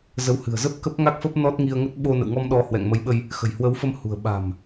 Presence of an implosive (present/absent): present